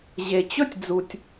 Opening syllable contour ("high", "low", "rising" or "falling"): low